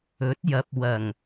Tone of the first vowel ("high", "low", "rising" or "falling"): rising